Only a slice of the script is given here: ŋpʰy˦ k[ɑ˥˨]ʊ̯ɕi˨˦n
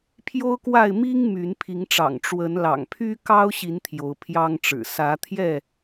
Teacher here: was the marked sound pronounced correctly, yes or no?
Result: no